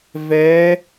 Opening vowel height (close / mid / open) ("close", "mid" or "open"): mid